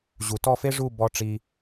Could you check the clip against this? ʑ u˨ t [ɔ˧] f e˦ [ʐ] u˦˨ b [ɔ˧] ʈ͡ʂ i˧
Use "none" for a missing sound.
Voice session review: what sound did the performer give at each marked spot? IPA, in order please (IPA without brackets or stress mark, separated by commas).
ɔ˦˨, ʐ, ɔ˧